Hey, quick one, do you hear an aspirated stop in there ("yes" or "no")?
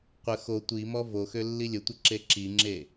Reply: no